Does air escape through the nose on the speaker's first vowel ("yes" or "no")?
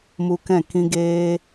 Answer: no